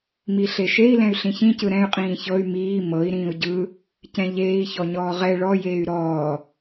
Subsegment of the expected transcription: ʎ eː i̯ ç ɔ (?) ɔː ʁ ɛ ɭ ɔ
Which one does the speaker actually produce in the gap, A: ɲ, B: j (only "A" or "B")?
A